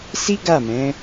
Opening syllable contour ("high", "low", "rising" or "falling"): high